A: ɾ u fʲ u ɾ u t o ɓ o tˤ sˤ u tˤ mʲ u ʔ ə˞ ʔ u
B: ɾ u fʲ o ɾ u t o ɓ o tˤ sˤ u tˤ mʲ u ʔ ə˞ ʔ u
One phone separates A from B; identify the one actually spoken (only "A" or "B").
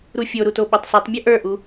B